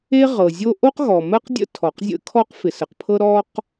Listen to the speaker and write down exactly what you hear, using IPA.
e˥ʁɤ˩zʲo˥ ʔo˥qɣɔ˩mɜ˥qdʲə̰˥ tʰɔ˩qzʲə̰˥kʰɔ˥q fɪ˩sə˩qpʰɤ˥ ɾɔ˥q

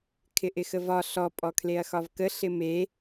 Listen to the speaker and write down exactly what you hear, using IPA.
kʰɪʔɪxəvɒ ɬɔ pʼɔkʰleɐ̯xɒvkə ɬɪme

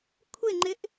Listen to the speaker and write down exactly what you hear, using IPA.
kʷʰɪŋ͡ǃɪʔ

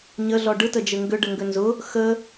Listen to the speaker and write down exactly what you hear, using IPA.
ɲəɮɔ ɖɯtəd͡ʒɘ ŋɡʏɖəŋɡʏ nzʊ | xə

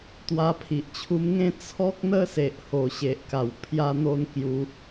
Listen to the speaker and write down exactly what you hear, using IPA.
t̪wa˧pʰi˨ʔt͡ɕʰu˧mŋẽ˥˧ t͡sʰɔ˦k̚ n̪ə˦se˨ʔ ho˨˩ɕe˨ʔka˨˩w pʰja˧n̪o˧n kju˧

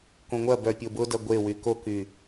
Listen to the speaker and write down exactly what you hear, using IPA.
kõŋʷɐbœ pʲobʊdɐ ɡʷewy koky

